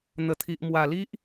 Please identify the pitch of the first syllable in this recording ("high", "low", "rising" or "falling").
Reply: low